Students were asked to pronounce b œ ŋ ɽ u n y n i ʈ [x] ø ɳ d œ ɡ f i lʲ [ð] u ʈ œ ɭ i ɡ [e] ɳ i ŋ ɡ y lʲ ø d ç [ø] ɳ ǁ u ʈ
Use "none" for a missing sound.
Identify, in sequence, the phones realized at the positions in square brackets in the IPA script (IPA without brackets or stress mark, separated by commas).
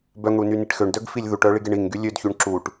x, ð, e, y